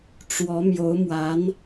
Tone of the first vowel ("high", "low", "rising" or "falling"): rising